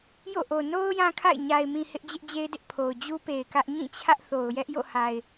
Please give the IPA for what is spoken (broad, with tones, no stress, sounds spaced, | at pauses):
j o̰˦˨ ʔ o˨ n o˦ ʊ̯ j ã˦ kʰ a̰˦˨ ɪ̯ ɲ a˨ ɪ̯ m ĩ˨ h ɪ˦ ʔ d͡ʑ ɪ˦ ʔ d͡ʑ e˦ ɪ̯ d ɪ˦ ʔ pʰ o˨ ʊ̯ d͡ʑ u˦ p e˨ ɪ̯ k ä˦ ʔ ɲ ĩ˦˨ t͡ɕʰ ä˦ ʔ θ o˨ ʊ̯ j ɛ˦ ʔ j o̰˦˨ h a˨ ɪ̯